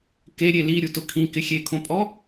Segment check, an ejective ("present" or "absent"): present